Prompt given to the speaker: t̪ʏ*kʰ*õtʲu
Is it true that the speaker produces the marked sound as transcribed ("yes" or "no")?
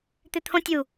no